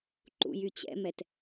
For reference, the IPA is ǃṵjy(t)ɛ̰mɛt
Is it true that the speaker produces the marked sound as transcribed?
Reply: no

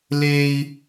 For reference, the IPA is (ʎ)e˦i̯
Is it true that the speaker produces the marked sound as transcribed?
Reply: no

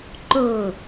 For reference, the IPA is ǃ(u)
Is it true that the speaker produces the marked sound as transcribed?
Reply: no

